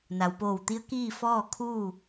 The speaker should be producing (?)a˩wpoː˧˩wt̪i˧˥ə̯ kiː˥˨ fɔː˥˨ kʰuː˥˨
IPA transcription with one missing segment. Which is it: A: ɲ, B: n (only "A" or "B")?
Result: B